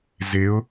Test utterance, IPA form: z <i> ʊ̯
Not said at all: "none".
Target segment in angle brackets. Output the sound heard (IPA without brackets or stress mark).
ɪ